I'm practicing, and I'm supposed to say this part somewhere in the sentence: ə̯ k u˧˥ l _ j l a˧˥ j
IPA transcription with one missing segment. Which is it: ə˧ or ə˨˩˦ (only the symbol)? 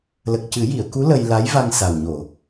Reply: ə˧